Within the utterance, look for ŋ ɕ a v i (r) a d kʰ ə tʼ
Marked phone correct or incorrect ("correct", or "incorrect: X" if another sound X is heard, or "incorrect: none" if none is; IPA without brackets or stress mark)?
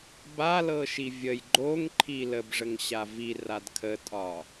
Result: correct